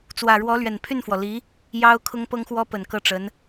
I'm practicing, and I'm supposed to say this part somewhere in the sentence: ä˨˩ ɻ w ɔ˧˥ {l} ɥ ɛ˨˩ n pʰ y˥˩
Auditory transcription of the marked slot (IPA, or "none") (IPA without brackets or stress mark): l